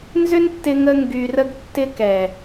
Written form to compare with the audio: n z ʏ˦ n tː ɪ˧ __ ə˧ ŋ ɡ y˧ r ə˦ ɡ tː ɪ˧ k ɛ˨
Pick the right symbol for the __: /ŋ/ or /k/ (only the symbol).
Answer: ŋ